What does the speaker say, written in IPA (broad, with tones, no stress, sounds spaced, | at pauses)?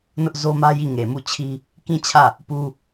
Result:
n ʊ˦ ʔ z o˦ m ä˦ j i˦˨ ŋ e˨ m u˦˨ t͡ɕʰ i˦ | k ĩ˦˨ t͡ɕʰ ä˦˨ | p u˦